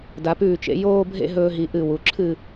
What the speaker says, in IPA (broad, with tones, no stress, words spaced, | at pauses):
da˩˧pʉː˧˩t͡ʃḛ˩˧ joː˥˧bʱḛ˥˧ɦɵː˧ɦi˩˧ ʔɨ˧˩ wu˩˧ǁʰɨ˥˧